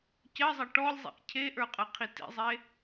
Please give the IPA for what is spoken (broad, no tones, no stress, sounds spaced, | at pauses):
c ɜ zˤ ɐ ʈ ɔ lʲ zˤ ḭ ʔ cʰ e ʔ ə˞ qʼ ɐ qʰ i t ḭ zˤ e